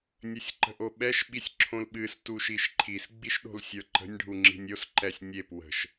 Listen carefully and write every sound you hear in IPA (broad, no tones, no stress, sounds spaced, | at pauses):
nʲ ə sʲ ǃ ə̤ ʔ o ɓ ɛ ʃ ɓ i sʲ ǁʰ õ l ɓ ɨ s t u ʃ i ʃ ǃʰ i s ɡ͡b i ʃ ɗ o̤ l sʲ ə˞ ǃ ə̤ nʲ ɖʱ u ŋ͡ǁ i̤ nʲ o s ǃ ɛ sʲ nʲ e p w ə̤ ʃ